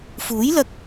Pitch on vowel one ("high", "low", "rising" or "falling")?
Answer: rising